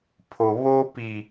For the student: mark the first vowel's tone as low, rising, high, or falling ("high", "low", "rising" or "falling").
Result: low